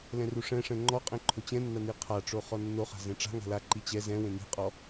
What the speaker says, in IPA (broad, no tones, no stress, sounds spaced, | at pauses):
l ɛ̃ r u ʂ ɛ̃ ʂ ɛ̃ ŋ͡ǃ ɔ qʼ ẽ ǃʰ o t͡ɕ ɛ̃ nː a n i qʰ a ʈ͡ʂ o χ ɔ nː o χ a̤ z ẽ ʈ͡ʂ a̤ ŋ a̤ l a ǃ i t͡ɕ ɛ z ɛ̃ w ẽ n i̤ qʼ ɔ